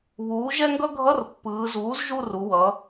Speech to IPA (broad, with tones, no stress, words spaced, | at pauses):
βuː˩˥ʒɛ˥ŋɡʌ˥ ɡʱʌ˧˥˧rpːɯː˩˧zuː˩˥z ʒu˦˨ru˩˧ wʌ˩˧